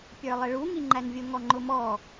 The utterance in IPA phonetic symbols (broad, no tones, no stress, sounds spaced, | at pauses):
pʲ ə˞ lˠ ɪ ɭ u ŋ i ŋ͡ǃ æ n vʲ ʊ ŋ ɔ ŋ͡ǃ ʊ m ɔ